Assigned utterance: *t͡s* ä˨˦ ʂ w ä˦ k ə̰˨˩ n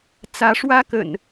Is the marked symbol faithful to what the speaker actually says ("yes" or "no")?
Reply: yes